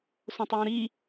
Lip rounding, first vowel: rounded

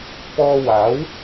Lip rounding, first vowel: rounded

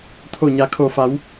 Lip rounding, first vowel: rounded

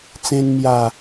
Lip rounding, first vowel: unrounded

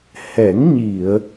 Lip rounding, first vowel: unrounded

